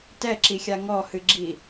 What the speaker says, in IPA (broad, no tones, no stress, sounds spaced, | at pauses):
t ɛ ǁ i xʲ a ŋ ɔ h ɨ ɡ͡ǁ i